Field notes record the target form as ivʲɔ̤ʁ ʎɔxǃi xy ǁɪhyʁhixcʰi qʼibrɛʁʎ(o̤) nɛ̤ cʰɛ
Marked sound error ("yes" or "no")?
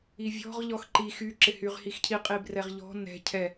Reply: yes